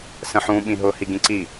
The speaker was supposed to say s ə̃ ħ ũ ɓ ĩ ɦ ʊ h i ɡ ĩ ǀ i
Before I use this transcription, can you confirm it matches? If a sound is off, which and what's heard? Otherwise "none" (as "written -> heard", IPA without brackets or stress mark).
none